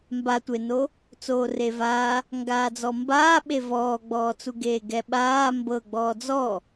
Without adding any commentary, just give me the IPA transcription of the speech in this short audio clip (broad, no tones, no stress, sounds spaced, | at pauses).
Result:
m b a tʷ e n o | t͡s oː r e v aː | ŋ ɡ aː d͡z ɔ m b aː ɓ e v ɔː ɡ͡b ɔː t͡s u ɡ eː ɡ ɛ ɓ aː m b ɤ ɡ͡b ɔː d͡z ɔ